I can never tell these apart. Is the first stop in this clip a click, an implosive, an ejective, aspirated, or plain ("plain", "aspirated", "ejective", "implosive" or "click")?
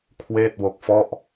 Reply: aspirated